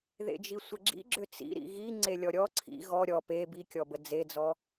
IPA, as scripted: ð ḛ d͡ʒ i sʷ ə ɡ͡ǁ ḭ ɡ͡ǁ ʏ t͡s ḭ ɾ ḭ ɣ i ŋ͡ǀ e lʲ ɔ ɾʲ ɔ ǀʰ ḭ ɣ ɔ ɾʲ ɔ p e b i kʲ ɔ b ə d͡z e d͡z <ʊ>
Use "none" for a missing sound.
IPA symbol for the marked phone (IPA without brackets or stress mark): ɔ